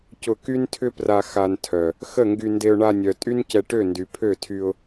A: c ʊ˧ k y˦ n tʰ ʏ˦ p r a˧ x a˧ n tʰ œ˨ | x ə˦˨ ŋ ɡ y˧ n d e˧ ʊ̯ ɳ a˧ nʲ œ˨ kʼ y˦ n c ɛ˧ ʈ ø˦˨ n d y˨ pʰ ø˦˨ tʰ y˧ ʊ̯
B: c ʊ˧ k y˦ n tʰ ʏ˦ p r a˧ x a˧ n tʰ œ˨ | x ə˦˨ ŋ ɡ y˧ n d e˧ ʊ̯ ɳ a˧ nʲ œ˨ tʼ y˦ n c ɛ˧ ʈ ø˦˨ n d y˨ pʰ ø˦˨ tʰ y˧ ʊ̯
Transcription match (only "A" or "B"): B